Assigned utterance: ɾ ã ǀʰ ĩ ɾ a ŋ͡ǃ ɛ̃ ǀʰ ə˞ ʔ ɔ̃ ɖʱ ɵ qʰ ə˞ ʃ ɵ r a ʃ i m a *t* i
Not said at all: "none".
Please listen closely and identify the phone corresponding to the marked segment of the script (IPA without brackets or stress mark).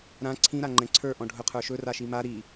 ɾ